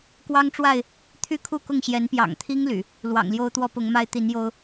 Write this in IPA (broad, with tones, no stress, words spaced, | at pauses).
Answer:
kwɑ˦ŋʈ͡ʂwa˥˨ɪ̯ | t̪ʰy˥˨kʰu˥˨kʊ˥˨ŋɕjɛ˨˦n pjɑ̰˨˩ŋt̪ʰi˦ŋ ly̰˨˩ | lwɑ̰˨˩ŋljo˦ʊ̯t̪wɔ˦ pʊ˨˦ŋma˦ɪ̯ t̪i˨˦njo˦ʊ̯